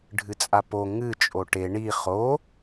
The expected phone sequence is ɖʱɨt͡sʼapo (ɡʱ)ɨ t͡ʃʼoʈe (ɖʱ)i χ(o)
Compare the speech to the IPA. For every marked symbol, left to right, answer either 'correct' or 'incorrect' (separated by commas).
incorrect, incorrect, correct